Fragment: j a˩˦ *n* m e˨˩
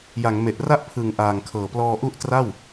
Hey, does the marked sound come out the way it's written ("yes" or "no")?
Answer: no